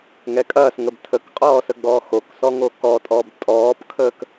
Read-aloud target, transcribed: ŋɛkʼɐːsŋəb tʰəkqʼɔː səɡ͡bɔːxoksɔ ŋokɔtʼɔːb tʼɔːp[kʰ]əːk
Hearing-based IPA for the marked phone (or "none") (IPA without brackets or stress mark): kʰ